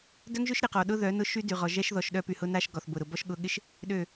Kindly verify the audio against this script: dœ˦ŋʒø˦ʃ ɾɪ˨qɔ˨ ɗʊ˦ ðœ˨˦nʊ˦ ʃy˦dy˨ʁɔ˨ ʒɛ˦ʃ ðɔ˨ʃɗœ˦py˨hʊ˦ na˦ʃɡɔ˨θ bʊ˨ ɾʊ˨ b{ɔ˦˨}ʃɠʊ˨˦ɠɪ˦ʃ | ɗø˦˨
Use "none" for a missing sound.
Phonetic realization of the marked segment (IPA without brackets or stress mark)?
ɔ˦